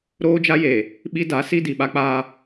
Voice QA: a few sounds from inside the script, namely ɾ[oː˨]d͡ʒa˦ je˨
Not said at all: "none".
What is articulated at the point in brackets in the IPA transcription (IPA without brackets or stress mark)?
oː˦